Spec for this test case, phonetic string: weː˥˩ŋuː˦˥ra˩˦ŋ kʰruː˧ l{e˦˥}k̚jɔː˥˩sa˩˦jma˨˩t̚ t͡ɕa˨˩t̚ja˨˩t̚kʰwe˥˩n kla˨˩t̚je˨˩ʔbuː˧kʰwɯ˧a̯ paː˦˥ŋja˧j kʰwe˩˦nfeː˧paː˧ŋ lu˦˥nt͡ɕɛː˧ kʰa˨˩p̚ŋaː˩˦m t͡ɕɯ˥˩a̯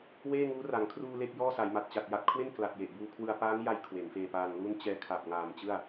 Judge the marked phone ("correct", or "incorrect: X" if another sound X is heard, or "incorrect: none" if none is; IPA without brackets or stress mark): incorrect: e˥˩